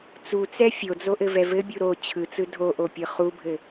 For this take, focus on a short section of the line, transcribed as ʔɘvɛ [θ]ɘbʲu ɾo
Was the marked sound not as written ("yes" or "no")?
yes